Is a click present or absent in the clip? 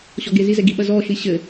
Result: absent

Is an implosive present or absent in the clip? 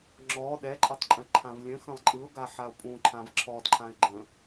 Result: present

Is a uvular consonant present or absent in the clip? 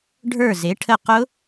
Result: present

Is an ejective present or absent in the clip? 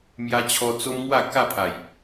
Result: absent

